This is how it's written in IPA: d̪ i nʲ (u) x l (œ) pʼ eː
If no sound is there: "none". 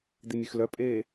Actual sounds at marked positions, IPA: y, œ

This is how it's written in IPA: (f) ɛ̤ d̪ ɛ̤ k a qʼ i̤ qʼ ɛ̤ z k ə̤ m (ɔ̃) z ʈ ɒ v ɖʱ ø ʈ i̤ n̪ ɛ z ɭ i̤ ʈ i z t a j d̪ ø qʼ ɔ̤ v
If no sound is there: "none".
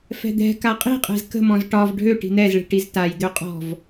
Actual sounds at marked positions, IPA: f, ɔ̃

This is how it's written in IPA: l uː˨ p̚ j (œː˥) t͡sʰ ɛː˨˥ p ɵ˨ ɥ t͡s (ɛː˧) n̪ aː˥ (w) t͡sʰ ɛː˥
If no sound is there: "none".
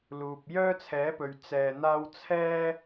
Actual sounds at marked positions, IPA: œː˥, ɛː˧, w

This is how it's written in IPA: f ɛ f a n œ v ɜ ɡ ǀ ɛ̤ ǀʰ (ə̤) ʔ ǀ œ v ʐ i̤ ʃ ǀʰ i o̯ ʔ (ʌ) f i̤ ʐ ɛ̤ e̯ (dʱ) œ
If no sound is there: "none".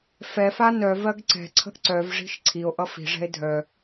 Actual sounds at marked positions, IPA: ə̤, ʌ, dʱ

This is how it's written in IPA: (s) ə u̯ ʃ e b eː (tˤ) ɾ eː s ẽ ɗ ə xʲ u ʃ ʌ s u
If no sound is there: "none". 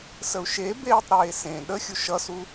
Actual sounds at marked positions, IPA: s, tˤ

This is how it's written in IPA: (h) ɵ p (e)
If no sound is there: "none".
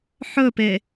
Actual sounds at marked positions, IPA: ħ, e

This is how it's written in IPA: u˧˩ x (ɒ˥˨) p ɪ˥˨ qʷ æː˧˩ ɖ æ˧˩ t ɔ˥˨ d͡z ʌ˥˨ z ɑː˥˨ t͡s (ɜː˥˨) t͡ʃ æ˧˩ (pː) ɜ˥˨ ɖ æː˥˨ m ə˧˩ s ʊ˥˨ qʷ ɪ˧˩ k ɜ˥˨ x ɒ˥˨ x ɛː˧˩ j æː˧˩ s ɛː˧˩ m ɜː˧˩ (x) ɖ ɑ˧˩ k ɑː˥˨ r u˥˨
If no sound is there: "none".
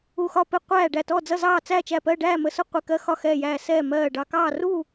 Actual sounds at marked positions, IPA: ɒ˥˨, æː˥˨, p, none

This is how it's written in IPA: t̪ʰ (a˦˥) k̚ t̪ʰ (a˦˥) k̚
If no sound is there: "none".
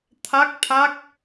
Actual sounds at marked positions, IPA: a˦˥, a˦˥

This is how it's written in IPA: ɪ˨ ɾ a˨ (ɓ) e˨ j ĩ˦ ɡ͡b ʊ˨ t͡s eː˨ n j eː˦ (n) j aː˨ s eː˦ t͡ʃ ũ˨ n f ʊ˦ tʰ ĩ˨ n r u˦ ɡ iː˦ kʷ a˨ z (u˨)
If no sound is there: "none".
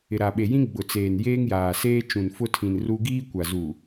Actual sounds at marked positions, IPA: ɓ, ŋ, u˨

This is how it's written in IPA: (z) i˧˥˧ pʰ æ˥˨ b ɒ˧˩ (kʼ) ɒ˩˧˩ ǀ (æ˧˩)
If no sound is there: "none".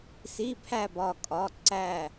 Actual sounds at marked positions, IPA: s, kʼ, æ˧˩

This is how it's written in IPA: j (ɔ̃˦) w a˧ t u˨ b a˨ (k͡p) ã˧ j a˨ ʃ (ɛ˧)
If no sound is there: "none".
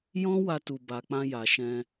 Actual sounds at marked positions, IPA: ɔ̃˦, k͡p, ɛ̃˧

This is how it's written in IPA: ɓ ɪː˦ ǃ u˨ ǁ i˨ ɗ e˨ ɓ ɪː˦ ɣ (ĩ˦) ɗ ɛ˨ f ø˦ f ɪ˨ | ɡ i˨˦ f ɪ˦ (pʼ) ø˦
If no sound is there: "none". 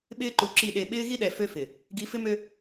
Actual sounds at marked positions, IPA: i˦, m

